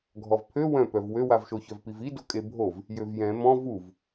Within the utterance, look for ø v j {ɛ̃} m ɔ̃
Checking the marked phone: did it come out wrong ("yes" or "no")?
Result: no